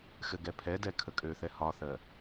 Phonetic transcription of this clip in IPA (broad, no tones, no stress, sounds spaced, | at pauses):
x ɘ ɡ ɛ pʰ ɛ d ɛ kʰ ə kʼ ø θ ɛ h ɒ θ ɜ